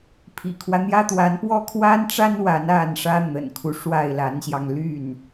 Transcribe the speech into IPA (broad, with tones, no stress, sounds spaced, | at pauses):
pʰ ḭ˨˩ kʰ w ä˦ n̪ j ä˥ t̪ w a˧˥ n p w ɔ˥˩ kʰ w a˥ n ʈ͡ʂ a˥ n w a˧˥ n a˥˩ n ʂ ä˥ n̪ ə̰˨˩ n kʰ u˦ ʂ w a˥˩ ɪ̯ l a˧˥ n ɕ j ɑ˧ ŋ l y˥˩ n